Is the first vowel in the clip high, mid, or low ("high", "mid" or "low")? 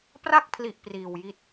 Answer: low